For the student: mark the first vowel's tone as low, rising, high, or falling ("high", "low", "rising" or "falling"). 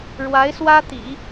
rising